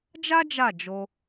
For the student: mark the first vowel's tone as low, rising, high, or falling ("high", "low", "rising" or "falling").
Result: high